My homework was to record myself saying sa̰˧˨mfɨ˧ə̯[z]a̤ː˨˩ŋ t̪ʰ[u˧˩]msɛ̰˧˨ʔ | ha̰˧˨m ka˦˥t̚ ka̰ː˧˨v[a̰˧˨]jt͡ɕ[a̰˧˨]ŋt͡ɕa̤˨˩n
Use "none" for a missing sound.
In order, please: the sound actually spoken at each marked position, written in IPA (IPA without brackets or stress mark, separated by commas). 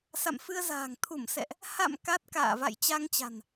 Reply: z, u˧˩, a̰˧˨, a˧